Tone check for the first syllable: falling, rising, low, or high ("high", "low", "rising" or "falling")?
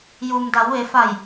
low